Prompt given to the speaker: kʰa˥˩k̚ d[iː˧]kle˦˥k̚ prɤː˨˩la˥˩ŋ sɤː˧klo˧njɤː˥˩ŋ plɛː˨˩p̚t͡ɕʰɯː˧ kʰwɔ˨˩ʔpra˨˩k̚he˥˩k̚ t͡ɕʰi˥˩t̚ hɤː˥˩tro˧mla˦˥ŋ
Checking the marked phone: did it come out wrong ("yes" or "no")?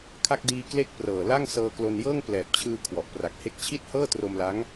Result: no